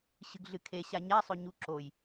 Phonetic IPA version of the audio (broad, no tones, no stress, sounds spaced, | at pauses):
ɕ ɨ ɡ ɮ ɨ kʰ e ɕ a ɲ a sˤ ɵ ɲ u ǁ o j